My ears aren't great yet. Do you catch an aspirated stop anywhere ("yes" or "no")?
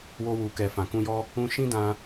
no